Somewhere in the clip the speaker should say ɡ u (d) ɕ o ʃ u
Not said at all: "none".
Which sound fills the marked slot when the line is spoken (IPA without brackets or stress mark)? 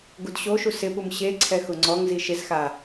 d